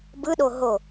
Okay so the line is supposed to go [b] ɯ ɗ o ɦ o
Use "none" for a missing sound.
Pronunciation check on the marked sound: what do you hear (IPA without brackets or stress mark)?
b